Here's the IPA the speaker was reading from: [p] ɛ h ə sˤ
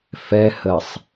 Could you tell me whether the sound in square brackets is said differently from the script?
yes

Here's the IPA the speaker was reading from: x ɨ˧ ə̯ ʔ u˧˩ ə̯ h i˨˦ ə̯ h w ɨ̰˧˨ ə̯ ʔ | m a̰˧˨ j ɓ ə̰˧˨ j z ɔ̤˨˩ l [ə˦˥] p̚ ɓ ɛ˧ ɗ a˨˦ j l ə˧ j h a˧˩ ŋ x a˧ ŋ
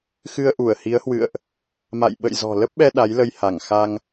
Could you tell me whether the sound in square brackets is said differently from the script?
no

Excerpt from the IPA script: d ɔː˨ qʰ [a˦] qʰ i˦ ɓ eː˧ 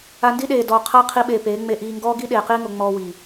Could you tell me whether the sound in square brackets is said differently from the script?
no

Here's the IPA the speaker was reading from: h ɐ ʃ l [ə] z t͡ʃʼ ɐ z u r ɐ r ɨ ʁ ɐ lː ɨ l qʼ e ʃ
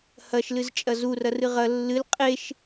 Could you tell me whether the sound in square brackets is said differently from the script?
yes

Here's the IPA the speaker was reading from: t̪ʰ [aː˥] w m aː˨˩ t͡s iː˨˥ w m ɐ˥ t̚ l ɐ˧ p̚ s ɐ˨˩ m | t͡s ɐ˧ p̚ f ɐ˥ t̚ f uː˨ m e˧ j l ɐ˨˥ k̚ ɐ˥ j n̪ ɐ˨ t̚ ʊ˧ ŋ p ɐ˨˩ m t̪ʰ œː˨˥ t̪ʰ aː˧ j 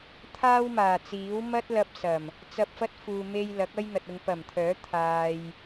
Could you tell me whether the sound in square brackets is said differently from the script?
no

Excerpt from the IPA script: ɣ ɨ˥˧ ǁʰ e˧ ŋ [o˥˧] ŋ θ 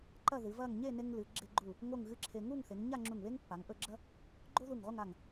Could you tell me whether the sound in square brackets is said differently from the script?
yes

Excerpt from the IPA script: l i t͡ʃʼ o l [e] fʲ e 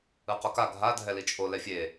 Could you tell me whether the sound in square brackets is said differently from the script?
yes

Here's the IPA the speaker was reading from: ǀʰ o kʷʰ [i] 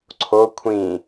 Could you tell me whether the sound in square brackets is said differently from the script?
yes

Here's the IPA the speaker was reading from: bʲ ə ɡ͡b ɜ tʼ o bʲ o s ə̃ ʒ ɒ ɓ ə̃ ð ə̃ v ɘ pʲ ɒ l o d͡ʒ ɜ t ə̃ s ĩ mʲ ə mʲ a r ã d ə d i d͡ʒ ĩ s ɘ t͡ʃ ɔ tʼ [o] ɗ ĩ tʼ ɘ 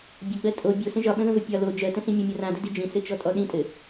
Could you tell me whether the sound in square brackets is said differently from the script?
yes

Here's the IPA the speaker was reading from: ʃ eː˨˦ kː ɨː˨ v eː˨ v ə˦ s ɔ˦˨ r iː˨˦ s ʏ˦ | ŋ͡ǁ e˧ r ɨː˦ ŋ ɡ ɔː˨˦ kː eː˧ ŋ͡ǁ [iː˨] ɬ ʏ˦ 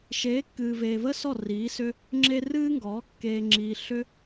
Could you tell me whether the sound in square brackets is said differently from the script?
yes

